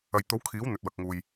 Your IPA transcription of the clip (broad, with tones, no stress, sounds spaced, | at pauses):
ɐ˨ j t̪ o˨˥ w kʰ iː˨˥ w n̪ ɵ˨ t̚ w ɐ˨ k̚ ŋ uː˨ j